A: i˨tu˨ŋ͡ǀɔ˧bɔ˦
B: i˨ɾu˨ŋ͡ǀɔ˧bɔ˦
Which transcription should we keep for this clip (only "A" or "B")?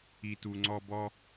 A